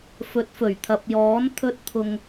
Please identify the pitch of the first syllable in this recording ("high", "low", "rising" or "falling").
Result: rising